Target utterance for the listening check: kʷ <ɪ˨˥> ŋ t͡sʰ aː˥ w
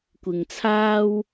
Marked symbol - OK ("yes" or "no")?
no